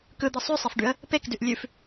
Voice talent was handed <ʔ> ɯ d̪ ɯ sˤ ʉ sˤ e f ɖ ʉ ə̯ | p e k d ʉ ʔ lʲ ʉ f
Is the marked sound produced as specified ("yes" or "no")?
no